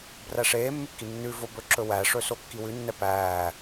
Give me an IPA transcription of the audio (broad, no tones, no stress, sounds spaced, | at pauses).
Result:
b r æ ʂ eː mː ʉ kː i nː ʉ v o b ɵ ǁ ɵ w æ ʂ ɵ s o kː i w ʉ nː ɛ p æː